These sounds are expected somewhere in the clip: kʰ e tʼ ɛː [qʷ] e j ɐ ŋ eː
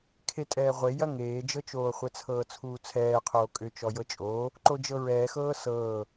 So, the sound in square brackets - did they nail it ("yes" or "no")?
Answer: no